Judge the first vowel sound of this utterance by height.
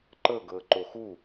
mid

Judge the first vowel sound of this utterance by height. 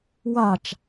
low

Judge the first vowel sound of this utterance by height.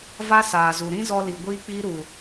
low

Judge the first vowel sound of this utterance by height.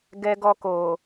mid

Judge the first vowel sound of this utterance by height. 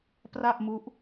low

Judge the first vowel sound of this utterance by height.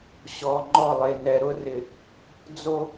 mid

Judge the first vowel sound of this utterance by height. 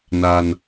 low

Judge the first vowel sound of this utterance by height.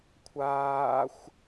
low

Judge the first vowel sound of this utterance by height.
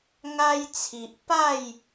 low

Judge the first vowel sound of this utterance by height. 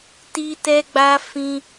high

